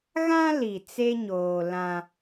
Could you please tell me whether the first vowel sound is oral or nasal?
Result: nasal